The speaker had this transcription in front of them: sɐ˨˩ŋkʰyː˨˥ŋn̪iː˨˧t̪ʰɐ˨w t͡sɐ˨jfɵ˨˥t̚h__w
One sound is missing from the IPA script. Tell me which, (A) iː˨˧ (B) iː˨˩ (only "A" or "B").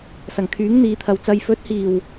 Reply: B